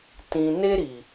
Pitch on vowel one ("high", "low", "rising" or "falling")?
high